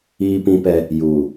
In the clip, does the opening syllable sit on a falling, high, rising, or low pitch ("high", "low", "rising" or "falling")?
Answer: high